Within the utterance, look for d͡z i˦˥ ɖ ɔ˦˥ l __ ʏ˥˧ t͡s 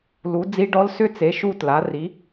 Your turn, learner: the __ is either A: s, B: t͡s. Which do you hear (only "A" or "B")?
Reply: A